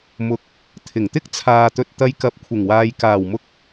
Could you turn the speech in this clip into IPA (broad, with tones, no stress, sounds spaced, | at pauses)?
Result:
m ʊ˨ k̚ | t̪ʰ ɪ˨˩ ŋ t̪ ɪ˥ k̚ t͡sʰ aː˨ t̪ ɵ˨ t̚ t̪ ɐ˧ j k ɐ˨˥ p̚ kʷʰ ɪ˨˩ ŋ w aː˨ j k aː˨˩ w m ʊ˧ k̚